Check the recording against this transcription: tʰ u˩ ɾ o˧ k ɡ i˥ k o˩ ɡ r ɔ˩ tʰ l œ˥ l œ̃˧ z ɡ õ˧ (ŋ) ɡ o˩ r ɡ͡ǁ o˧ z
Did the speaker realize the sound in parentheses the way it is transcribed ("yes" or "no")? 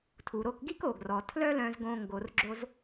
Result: yes